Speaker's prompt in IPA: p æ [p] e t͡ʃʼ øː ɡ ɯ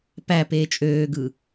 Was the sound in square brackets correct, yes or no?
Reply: yes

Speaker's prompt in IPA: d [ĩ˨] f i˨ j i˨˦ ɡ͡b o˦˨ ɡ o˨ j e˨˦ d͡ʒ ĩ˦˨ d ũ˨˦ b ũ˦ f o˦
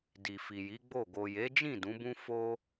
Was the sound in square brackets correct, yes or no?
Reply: no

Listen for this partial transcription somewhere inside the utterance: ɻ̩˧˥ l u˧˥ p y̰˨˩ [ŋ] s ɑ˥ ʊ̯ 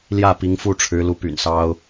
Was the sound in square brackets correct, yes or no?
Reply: no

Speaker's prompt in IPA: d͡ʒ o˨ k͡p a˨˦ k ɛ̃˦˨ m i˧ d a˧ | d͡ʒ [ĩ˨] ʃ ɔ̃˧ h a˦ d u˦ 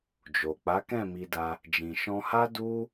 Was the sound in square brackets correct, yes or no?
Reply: yes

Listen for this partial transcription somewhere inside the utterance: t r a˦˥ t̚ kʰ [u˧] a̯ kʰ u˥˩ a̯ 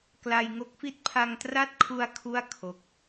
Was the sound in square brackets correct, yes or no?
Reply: yes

